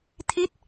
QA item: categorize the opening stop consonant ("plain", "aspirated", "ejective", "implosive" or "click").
aspirated